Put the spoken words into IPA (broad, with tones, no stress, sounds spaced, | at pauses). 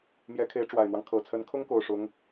m j ɛ˧˥ kʰ e˧˥ ɪ̯ ʈ͡ʂ w a˨˩ ɪ̯ n̪ w ɑ˦ ŋ kʰ ɤ˨˩ t͡sʰ ə˧˥ n kʰ ʊ˥ ŋ k o˥˩ ʊ̯ ʂ ʊ˧˥ ŋ